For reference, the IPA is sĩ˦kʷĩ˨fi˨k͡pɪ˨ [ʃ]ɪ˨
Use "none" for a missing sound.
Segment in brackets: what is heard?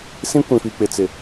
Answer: t͡s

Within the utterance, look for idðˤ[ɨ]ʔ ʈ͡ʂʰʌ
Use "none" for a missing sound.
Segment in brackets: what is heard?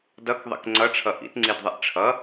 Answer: ɨ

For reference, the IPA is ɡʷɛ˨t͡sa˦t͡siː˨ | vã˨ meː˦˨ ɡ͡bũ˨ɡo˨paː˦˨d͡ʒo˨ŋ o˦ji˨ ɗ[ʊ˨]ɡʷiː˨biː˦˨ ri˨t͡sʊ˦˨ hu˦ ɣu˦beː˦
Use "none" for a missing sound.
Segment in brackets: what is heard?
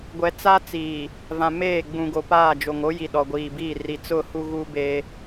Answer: ɔ˨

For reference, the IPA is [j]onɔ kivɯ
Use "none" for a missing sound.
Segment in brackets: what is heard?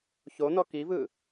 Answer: ç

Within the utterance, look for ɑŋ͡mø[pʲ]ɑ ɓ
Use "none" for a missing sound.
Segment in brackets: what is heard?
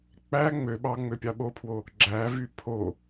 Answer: pʲ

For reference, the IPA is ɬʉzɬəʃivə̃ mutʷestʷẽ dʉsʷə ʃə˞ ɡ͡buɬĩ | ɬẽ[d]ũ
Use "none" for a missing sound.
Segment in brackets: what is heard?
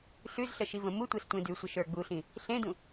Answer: d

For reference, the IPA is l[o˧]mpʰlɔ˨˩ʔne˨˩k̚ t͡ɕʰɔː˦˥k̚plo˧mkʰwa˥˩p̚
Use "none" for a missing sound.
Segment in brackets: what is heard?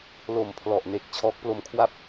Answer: o˨˩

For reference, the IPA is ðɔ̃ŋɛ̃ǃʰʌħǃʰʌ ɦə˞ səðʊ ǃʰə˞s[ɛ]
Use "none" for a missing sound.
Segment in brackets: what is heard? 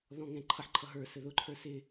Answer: ɪ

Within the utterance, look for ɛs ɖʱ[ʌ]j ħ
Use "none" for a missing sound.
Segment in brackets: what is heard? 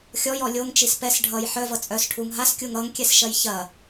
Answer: ʌ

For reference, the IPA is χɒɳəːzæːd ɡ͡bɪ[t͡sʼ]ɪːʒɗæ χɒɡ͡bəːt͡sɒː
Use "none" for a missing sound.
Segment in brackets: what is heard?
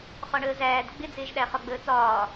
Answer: d͡z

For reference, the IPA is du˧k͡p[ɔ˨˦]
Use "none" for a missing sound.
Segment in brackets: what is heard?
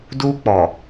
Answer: ɔ˨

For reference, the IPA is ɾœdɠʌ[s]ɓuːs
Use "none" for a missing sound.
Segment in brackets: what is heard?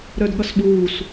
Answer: s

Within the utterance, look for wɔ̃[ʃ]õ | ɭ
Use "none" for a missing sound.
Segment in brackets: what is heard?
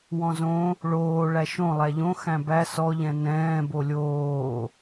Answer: z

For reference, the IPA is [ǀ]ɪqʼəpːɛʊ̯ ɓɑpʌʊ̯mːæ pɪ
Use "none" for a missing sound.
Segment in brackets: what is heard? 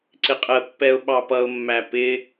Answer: ǀ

